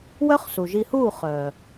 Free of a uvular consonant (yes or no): no